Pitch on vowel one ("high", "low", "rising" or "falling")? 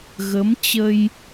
rising